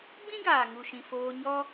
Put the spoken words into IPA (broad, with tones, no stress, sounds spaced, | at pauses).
ɡ͡b ĩ˦ ɡ aː˨ ŋ u˨ ʃ ĩ˨ f oː˧ ɲ ɔ˦